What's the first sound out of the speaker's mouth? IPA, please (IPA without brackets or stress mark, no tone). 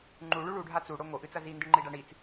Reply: ŋ͡ǃ